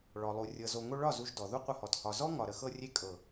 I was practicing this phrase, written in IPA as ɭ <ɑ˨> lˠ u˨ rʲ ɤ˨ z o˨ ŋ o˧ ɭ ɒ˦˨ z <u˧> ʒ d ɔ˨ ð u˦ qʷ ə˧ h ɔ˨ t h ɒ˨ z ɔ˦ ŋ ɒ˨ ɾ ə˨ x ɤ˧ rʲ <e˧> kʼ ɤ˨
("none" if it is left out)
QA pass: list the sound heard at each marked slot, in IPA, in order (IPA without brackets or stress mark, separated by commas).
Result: ɔ˨, u˧, e˧